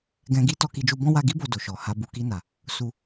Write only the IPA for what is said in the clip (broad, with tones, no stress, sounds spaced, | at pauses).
ɡ ɛ̃˧ ɡ i˦ t ɔ˧ k i˧ d͡ʒ u˧ b ɔ̃˦ w a˧ ɡ i˦ b o˧ d o˨ ʃ ɔ˨ h a˧ b u˨ k i˧ n a˨ | s u˧